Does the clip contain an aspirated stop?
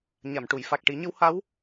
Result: no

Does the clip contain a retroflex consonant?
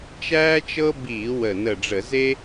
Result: yes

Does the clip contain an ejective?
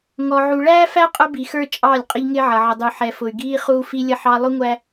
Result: yes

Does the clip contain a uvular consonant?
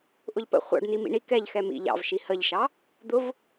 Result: yes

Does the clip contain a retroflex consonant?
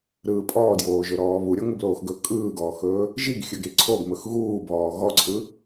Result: no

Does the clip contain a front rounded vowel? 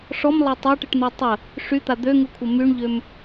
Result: yes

